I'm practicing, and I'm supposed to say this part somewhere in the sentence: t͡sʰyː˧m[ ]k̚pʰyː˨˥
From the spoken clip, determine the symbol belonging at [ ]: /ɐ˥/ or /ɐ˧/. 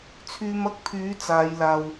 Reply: ɐ˥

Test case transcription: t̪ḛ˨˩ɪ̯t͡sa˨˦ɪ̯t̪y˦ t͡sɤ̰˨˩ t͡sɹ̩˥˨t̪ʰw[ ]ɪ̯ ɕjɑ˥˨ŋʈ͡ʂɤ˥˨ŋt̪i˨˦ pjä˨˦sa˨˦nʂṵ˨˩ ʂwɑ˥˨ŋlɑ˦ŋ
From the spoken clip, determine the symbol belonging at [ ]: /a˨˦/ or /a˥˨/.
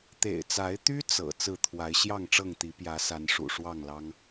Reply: a˨˦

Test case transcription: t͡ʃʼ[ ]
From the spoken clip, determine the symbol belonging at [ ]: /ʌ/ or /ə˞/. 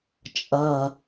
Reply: ʌ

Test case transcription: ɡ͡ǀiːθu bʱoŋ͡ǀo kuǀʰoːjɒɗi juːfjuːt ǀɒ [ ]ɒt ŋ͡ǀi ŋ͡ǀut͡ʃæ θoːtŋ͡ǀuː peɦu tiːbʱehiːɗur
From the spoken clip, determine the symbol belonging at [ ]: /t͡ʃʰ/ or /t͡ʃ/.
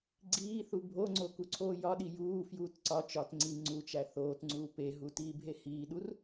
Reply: t͡ʃ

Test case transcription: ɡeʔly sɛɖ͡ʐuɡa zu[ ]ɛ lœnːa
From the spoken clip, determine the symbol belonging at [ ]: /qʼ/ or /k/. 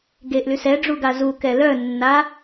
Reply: k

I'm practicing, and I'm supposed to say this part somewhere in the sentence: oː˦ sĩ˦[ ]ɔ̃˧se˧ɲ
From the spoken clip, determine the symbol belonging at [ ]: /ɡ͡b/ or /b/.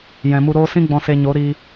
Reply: ɡ͡b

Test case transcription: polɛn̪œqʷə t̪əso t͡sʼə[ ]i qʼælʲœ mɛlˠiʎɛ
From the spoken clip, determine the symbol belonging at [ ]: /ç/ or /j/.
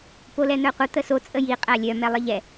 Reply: j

